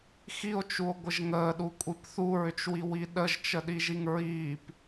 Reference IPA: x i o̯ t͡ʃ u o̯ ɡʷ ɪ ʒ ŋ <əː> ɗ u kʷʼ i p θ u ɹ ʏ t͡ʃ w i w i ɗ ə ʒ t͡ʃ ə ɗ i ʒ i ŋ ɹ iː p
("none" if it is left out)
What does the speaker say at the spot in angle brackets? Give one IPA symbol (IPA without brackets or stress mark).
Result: əː